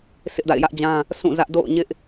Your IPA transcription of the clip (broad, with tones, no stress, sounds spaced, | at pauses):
s ɪ˦ ʔ d a̰˦˨ ɪ̯ j ä˦ ʔ d͡ʑ ã˦ | s ũ˦˨ z ä˦ ʔ d o̰˦˨ ʊ̯ ɲ ɪ˦ ʔ